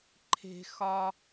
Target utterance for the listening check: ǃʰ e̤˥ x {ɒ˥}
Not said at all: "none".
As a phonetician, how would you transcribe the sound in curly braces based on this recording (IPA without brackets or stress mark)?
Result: ɒ˥